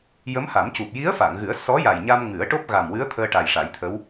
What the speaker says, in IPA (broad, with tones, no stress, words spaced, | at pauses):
jə˧˥mha˨˩˦mcu˨˩p̚ ji˧˥ə̯fa˨˩˨ŋɣɨ˨˩˦ə̯ sɔ˧˥ja˨˩jɲa˧mŋɨ˨˩˦ə̯ ʈo˦˥p̚ɣa˨˩mwɨ˧˥ə̯ t̪ʰəː˧ʈa˨˩jʂa˨˩˦jt̪ʰə˧˥w